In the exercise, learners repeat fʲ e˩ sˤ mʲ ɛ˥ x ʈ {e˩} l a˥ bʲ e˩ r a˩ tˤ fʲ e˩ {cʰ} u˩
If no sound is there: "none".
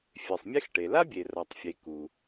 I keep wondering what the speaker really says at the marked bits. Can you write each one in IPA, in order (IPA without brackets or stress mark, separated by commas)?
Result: e˩, k